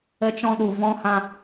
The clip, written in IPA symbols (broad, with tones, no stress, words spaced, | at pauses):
ə˧t͡ʃɔ̃˧ɗu˨ vɔ̃˧hã˧